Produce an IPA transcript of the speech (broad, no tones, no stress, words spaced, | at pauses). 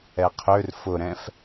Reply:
ɛqʰør fʊɾɛ̃f